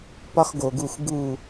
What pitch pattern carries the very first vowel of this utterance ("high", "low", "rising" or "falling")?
high